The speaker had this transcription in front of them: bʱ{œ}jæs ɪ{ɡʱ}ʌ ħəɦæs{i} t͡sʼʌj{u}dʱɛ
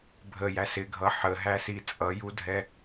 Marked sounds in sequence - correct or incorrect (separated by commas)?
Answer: incorrect, correct, correct, correct